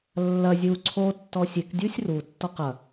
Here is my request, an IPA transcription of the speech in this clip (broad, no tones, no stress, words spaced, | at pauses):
lːɐ zʲu ǀʰotːɔ sʲekdʲusʲ rutːɔq ɐ